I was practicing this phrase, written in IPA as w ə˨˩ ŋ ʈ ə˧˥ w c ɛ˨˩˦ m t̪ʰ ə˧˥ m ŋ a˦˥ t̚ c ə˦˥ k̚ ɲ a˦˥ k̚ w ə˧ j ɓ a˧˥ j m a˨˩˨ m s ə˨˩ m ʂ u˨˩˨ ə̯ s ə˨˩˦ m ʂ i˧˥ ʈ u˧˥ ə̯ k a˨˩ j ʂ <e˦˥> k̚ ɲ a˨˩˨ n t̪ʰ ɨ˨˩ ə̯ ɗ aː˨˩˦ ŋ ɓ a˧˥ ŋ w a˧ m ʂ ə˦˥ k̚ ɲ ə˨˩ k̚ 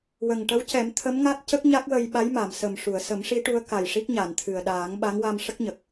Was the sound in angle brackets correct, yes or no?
no